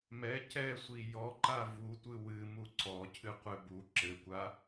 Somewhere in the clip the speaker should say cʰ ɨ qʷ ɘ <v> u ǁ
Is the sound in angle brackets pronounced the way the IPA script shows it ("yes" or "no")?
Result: no